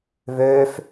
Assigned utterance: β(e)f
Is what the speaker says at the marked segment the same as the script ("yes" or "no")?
no